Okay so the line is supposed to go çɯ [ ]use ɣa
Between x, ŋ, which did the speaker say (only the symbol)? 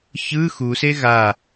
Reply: x